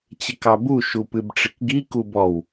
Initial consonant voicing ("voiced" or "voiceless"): voiceless